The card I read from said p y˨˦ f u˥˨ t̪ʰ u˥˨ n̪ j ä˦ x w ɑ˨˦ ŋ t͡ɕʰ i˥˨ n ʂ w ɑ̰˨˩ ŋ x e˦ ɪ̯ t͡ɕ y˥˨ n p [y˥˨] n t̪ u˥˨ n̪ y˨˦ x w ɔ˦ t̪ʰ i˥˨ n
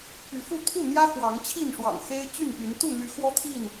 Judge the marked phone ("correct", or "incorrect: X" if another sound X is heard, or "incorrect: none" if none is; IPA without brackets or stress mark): incorrect: y˨˦